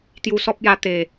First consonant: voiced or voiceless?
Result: voiceless